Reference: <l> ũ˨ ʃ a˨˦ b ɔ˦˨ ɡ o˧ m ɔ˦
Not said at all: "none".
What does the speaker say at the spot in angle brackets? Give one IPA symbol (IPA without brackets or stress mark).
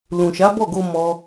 l